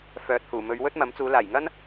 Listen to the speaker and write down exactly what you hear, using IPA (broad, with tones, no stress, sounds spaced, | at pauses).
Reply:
f œː˨ t̚ h uː˨˩ m ɵ˨˧ ɥ w ɵ˥ t̚ m ɐ˨˥ m t͡s uː˨˧ l aː˨˩ j ŋ ɐ˥ n